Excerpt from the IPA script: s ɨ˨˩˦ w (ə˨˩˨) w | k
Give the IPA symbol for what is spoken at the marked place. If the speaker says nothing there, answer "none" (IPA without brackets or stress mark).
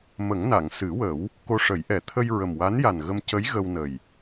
ə˨˩˦